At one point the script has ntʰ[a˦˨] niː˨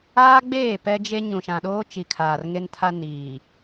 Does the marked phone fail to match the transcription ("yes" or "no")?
yes